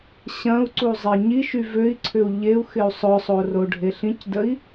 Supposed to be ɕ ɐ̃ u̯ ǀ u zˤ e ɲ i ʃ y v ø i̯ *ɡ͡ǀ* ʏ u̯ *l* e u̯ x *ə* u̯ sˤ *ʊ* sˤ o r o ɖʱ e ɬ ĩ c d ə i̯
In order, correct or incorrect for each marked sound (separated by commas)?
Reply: incorrect, incorrect, incorrect, correct